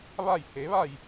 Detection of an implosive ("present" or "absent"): absent